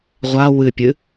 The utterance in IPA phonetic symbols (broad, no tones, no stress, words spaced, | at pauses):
ʁʷa wɨpʲɨ